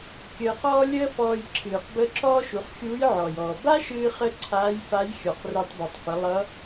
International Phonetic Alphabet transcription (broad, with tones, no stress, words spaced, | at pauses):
kʲəː˧qɔː˥ lʲəː˥fɔː˧j ǁʰɨː˩qbə˧˥ ǁɔː˥ʃu˩˧χxʲuː˧˥j ʕɔ˩jɔː˩ ba˥ʃɨː˧χə˧ ǀʰaː˧˥jfa˧˥j xʲɔ˩qre˧tˤbe˩tˤfə˩˧ lˠʌ˧˥